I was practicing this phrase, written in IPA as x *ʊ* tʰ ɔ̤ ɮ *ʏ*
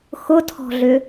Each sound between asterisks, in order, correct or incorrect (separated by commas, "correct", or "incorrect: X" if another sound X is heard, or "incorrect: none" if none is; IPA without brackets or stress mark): correct, correct